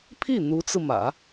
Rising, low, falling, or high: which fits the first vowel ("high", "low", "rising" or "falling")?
falling